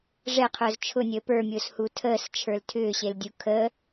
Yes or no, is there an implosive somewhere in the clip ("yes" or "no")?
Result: no